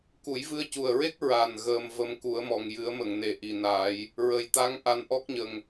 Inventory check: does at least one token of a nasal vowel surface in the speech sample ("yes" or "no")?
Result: no